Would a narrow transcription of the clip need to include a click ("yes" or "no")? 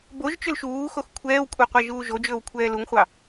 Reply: no